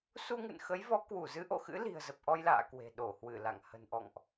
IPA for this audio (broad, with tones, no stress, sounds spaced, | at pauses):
s u˧ ŋ ɨ̰˧˨ n x ə˨˦ j v ɔ˨˦ k w u˧˩ z ɨ˨˦ ʔ o̰˧˨ x ɨ̰˧˥ l i̤˨˩ ə̯ z ə˨˩ p̚ ʔ ɔ˧ j l a̰ː˧˨ k w e̤˨˩ ɗ o˧˩ h w ɨ˧˩ l a̰˧˨ ŋ h ə̤˨˩ n ʔ ɔ̰˧˨ ŋ ʔ